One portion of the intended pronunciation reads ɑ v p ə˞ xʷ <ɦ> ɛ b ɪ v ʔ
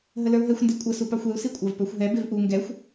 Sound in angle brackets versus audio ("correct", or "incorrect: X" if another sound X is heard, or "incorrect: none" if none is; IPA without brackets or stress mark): correct